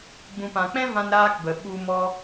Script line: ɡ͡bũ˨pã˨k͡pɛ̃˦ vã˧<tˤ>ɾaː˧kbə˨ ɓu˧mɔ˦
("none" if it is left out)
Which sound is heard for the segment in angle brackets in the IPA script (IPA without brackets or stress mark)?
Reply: n